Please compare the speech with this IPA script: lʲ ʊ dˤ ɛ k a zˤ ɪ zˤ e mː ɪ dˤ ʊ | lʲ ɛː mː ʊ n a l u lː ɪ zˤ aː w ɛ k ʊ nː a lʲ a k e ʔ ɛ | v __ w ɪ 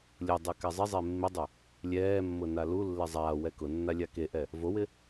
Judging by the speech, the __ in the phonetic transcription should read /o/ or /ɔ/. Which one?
o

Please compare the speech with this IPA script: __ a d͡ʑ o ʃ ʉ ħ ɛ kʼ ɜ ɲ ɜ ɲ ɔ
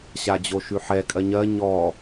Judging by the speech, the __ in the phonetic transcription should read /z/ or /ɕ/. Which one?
ɕ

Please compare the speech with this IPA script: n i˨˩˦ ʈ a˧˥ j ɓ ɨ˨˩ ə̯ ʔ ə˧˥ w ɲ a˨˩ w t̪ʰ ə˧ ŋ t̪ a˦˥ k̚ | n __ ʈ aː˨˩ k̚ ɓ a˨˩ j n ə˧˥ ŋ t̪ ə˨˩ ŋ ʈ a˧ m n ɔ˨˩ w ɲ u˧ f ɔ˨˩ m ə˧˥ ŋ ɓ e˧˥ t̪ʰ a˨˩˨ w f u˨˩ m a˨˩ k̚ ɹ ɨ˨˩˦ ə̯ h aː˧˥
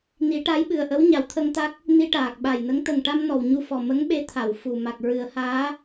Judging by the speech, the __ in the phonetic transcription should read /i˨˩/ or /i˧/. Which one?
i˧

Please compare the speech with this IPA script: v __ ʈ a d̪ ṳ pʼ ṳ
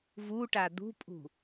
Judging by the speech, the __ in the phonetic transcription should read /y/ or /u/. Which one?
u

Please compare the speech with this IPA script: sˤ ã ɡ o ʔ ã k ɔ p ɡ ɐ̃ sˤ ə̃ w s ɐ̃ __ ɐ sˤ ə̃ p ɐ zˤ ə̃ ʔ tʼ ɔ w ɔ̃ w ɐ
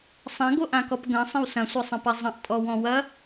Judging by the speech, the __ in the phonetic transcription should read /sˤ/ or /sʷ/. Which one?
sʷ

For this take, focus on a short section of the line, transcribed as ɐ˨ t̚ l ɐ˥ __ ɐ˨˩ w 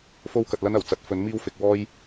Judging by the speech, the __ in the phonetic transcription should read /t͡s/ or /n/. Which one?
n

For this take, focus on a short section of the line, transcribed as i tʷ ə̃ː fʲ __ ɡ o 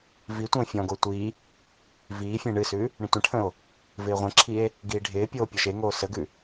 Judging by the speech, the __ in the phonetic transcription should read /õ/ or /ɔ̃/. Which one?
ɔ̃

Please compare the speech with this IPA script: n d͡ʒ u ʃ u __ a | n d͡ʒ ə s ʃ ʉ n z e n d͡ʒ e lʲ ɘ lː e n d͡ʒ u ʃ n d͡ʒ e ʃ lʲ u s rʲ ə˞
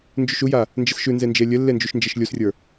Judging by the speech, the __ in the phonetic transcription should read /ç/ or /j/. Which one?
j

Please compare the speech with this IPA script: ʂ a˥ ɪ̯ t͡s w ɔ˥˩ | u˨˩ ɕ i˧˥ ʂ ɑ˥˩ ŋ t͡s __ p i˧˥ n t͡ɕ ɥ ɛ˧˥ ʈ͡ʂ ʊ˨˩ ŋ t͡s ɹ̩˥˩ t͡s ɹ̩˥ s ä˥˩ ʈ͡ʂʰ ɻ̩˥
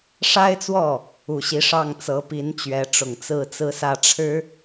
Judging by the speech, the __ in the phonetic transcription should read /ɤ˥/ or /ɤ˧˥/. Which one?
ɤ˧˥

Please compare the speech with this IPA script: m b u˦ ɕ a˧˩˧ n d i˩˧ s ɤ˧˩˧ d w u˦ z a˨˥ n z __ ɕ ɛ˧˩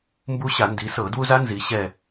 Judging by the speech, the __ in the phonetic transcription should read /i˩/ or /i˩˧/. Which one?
i˩˧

